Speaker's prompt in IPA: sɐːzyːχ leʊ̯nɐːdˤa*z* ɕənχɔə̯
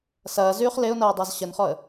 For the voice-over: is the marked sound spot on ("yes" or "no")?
yes